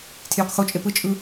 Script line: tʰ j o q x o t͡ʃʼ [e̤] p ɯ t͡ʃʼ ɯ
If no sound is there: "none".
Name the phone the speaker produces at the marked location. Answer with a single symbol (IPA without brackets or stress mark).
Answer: e